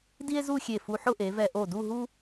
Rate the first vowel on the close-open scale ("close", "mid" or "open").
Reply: close